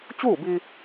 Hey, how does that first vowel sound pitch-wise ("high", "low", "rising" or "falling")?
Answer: falling